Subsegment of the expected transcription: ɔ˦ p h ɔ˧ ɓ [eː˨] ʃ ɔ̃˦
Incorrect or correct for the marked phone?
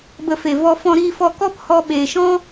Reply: correct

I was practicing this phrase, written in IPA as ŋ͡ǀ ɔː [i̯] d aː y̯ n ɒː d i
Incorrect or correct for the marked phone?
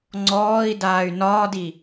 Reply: correct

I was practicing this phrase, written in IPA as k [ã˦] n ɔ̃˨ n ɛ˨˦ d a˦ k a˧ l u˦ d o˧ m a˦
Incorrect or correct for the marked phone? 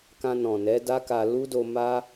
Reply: incorrect: ã˧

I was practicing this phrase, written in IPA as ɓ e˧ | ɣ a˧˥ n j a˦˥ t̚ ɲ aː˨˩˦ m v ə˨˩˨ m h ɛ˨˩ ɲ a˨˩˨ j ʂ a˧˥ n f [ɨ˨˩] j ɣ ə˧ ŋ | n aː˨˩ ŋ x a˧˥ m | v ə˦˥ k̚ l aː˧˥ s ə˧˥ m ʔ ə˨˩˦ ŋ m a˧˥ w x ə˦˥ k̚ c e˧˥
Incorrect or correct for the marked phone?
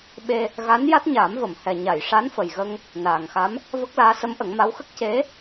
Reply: incorrect: ə˨˩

